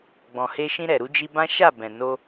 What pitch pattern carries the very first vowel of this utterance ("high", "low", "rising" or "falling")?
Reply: low